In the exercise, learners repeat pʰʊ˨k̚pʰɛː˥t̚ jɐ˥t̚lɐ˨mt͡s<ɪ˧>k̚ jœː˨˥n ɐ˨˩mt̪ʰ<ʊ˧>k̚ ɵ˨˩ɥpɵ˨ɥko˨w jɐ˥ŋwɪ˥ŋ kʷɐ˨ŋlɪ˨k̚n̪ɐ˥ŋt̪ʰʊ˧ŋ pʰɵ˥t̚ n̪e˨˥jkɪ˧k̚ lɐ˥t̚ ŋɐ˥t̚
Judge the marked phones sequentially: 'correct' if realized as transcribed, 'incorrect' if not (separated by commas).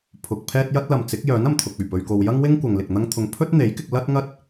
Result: incorrect, incorrect